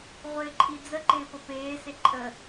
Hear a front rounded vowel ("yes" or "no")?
no